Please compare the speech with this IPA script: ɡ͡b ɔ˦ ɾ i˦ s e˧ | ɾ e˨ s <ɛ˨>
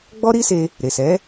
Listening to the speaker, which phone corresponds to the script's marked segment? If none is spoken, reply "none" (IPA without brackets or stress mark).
ɛ˨˦